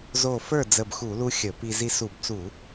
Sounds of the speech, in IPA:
z o˧˩ f ə˞˥˩ d͡z ə˧˩ b x u˧˩˧ l u˧ xʲ ə˧˩˧ p i˧ z i˧ s u˧˩˧ b t͡s u˧˩˧

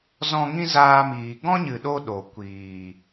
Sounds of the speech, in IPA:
z ɔ̃˦ ŋ ĩ˦ z aː˧ m iː˨ ɡ ɔ̃˦ ɲ ɨ˨ ɗ o˦ ɗ o˨ kʷ iː˨

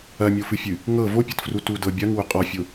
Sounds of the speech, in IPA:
ɐ mʲ o f ɨ fʲ ɨ | ŋ ɤ v o pʲ ɤ t f r u t u d ɤ bʲ ɐ ŋ w ʊ qʼ ɔ fʲ ʊ

